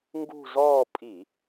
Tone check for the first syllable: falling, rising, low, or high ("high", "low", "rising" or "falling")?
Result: falling